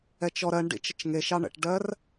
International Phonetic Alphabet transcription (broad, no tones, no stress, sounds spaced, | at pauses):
ɛ t͡ʃ ɔ ɾ ɜ ɳ ɖ ḭ t͡ʃ ə t͡ʃ ŋ e ʃ ɑ ɳ ə̰ ʈ ɖ ɜ r